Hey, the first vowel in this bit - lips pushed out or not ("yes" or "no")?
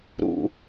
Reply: yes